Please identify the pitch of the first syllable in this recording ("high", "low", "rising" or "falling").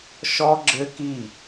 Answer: high